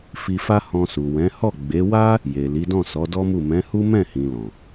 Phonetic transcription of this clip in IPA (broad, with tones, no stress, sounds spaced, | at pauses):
f i˧ f a˦ h ɔ̃˧ s u˨ w ɛ̃˨˦ h ɔ˦˨ ɡ͡b e˨˦ w a˦ | j e˨ l i˨˦ d ɔ̃˦˨ s ɔ˨˦ d ɔ˦ m u˦˨ m ɛ̃˨˦ h u˦ m ɛ̃˦˨ h ĩ˨ l ɔ̃˨